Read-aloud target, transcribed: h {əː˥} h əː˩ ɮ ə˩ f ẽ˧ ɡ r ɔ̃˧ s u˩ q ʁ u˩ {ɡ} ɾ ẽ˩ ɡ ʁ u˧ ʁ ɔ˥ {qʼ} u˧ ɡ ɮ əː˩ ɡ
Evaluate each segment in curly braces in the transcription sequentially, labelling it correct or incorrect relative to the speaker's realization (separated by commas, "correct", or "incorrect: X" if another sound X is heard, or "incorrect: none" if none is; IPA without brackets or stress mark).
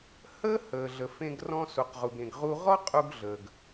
correct, correct, correct